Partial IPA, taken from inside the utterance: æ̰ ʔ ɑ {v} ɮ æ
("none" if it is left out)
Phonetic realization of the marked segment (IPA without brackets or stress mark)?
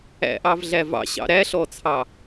v